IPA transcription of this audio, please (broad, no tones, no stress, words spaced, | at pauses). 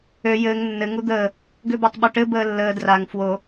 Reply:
ø jɘːŋ nːɘ ŋud̪əː | ɡøbatˤɓuʈɘ bəːlːəː draŋ fwo